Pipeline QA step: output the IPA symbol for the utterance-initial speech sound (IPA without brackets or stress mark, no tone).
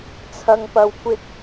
t͡sʰ